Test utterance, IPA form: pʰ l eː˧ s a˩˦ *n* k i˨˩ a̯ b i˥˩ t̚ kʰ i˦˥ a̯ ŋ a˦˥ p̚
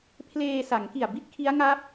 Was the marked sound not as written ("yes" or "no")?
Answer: yes